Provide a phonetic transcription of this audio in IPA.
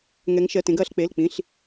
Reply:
ŋ ɛ˧˥ ŋ ʃ ɜ˧˥˧ t ẽ˧˥ ɡ ɐː˧˥ ɬ k͡p e˧˥˧ l k͡p ĩ˧˥˧ ɬ

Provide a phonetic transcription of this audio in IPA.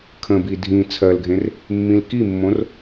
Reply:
kʰ ə̃ b i dʱ ĩ t͡sʰ ɜ l ɡʱ ẽ r | mː ĩ l k i mː õ r

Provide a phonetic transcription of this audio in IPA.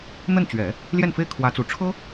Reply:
n̪ ə˥˩ n t͡ɕ ɥ ɛ˨˩˦ | l j ɛ˥˩ n f e˥ ɪ̯ kʰ w ä˧˥ t͡s u˨˩ ʈ͡ʂʰ ɤ˥

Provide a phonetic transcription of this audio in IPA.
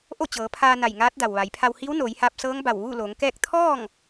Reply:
ʔ o˥˨ t͡ɕ ɤː˩˧ pʰ aː˧ n a˧˩ j ŋ aː˧˥ t̚ d a˩ w ʋ a˩˧ j pʰ a˧ w h i˧˥ w n oː˩˧ j h aː˧ p̚ s ɤː˧˥ ŋ b a˧˩ w ʋ uː˥˨ l oː˩˧ ŋ k ɛː˥˨ k̚ t̪ʰ ɔː˥˨ ŋ

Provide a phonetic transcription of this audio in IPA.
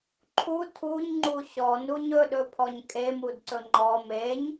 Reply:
ǃʰ u tʰ u ɲ ŋ͡ǃ u ɕ ɔ n u ɲ ɵ ɗ ɵ pʰ ɔ ɲ kʼ e m u d ǀ ɵ ŋ͡ǃ ɔ m e ɲ

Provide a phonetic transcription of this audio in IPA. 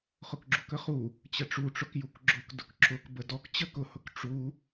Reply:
χ ʊ k ɡ͡ǁ u k ə χ u | t͡ɕ ə ʈ͡ʂ u ʈ͡ʂ ʊ k j u k ɡ͡ǁ ʊ k d ʊ k ǁ ʊ k b ə d ɔ k t͡ɕ ə k ʊ h ʊ k ʈ͡ʂ u

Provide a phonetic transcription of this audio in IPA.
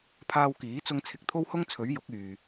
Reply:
pʰ aː˧ w k iː˨˥ t͡s ʊ˧ ŋ t͡sʰ ɪ˨˥ k̚ t̪ʰ o˥ w h ʊ˥ ŋ t͡sʰ ɵ˨˥ ɥ j ʊ˨˥ k̚ yː˨

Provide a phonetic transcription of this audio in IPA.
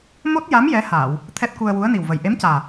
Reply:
m o˦˥ t̚ j a˧˥ m j ɛ˧˥ h aː˨˩˨ w | t̪ʰ ɛ˦˥ t̚ k u˧ ə̯ w u˧˥ ə̯ n i˨˩ w v ə˨˩ j ʔ e˧˥ m c aː˨˩

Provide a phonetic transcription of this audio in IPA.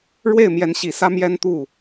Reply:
ɻ w e˥˩ ɪ̯ m j ɛ˧˥ n ɕ i˨˩ s ä˥ m j ɛ˥ n t̪ u˥˩

